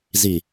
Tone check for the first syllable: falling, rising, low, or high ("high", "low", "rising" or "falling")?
low